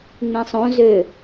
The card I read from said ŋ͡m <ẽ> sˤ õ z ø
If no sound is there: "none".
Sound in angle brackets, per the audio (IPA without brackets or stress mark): ẽ